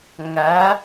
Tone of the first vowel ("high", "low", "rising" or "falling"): rising